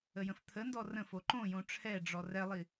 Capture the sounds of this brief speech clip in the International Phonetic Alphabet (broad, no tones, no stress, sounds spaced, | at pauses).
ə j ə̃ f t̪ʰ ə n d ɔ r ə̃ f o ǃ õ j õ ʈ͡ʂʰ ɛ ɖ͡ʐ ɔ r ɛ lˠ i